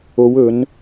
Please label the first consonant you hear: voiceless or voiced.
voiced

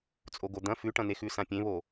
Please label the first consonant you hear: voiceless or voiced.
voiceless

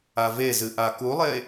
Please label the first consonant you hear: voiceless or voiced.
voiced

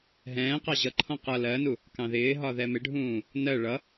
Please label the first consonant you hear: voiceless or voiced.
voiced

